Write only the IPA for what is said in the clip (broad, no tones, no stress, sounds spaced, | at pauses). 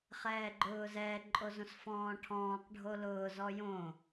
χ ɛː ɡ͡ǃ ʊː z ɛ ǃʼ o z õ s f ɔ̃ː ʈʰ ɔ̃ː q ɖʱ o l ʊː z ɔ j õ